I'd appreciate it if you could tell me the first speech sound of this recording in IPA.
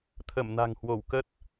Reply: t̪ʰ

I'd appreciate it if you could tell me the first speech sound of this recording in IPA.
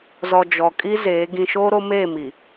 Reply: z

